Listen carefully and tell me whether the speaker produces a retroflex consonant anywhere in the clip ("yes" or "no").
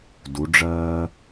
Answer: yes